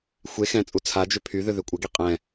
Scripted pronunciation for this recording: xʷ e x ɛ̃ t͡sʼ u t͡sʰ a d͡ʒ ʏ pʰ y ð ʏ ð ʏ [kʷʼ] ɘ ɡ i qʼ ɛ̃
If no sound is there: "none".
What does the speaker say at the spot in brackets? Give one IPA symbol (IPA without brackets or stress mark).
kʷʼ